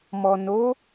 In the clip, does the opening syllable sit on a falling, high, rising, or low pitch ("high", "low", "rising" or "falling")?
low